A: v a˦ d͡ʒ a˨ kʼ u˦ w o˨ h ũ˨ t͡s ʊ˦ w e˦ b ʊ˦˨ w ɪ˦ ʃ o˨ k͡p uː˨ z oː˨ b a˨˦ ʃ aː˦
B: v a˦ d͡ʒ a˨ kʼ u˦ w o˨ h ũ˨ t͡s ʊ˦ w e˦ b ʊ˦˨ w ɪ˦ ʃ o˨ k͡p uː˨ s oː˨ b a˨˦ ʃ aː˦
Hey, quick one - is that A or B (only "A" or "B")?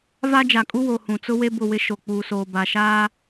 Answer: B